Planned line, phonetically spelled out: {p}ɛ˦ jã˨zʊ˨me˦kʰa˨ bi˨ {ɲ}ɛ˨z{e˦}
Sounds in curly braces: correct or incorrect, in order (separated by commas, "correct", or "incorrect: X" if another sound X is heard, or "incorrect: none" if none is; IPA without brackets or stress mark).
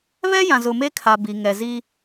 incorrect: β, incorrect: ŋ, incorrect: i˦